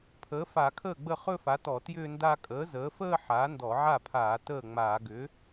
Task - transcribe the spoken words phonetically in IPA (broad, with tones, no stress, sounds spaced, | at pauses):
pʰ əː˩˥ f a˧˩˧ kʰ əː˥˩ ɡ͡b ə˥˩ χ ɵ˥˧ f a˩˥ t ɔ˧˩˧ t j ʏː˥˧ n d a˥˧ kʼ əː˩˥ z əː˩˥ f əː˥˧ ħ aː˩˥ n d ɔ˧˩˧ ʕ a˥˩ pʰ aː˧˩˧ t əː˥˩ ŋ͡m aː˧˩˧ ɡ ʏ˩˥